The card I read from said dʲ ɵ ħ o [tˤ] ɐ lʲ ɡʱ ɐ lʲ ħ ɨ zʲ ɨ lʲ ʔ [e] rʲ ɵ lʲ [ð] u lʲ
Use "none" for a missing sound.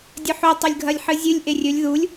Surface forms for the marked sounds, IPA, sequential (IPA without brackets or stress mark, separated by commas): tˤ, e, ð